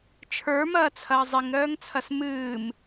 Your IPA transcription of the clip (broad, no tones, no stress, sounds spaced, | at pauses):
t͡ʃʰ ə˞ m ɐː t͡sʰ ɐː zˤ i ŋ ɾ œː ŋ t͡sʰ ɐ s m ɨː m